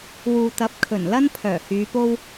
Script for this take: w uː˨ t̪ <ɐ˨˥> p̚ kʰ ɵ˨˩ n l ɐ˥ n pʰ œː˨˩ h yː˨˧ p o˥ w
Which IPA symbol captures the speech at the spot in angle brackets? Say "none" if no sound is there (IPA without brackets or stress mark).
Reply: ɐ˨˥